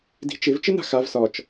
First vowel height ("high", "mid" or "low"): high